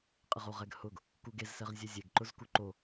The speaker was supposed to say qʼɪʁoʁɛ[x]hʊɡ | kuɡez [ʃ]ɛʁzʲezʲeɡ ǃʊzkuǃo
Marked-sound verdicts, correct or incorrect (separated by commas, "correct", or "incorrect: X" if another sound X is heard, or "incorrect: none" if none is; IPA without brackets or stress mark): incorrect: ɡ, incorrect: s